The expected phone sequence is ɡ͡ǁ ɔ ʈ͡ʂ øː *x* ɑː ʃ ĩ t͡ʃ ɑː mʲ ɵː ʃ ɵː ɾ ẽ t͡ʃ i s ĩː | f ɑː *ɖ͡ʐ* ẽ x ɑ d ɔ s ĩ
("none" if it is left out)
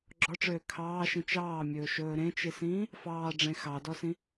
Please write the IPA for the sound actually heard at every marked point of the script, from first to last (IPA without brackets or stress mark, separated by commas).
kʰ, ɖ͡ʐ